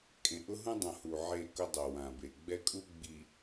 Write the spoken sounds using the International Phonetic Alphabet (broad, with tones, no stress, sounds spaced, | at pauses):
kʼ ẽ˨ ʔ ʊ˦ ɦ ũ˦ dˤ õ˨ h u˨ ʕ e˦˨ k ʊ˦ dˤ o˨ w ã˨ b e˨ ɡ͡b ɛ˦ kʼ u˦ ɡ͡b i˨